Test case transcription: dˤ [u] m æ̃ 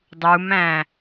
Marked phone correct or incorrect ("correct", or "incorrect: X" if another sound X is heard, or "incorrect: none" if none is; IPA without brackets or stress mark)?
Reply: correct